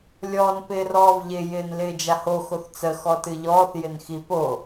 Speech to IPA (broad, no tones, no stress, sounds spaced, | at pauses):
lʲ ɔː n p ɪː r ɔː v ʎ ɪ j ɪː n l ɪː d͡ʒ a h o x o θ t͡s ə x ɔ t ɨ ʎ ɔː θ j ɪ n x i p o